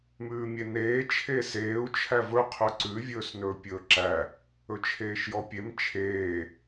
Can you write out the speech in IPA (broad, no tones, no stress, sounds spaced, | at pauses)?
m ʉː mʲ e n eː t͡ʃʰ eː s eː u̯ t͡ʃʰ æ v ɵ qʰ ɵ ǀ ʉ vʲ ɵː s n ɵː pʲ ɵː ǁ æ | ɵ t͡ʃʰ eː ʃ j ɔ pʲ e m t͡ʃʰ eː